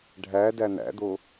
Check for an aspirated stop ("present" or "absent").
absent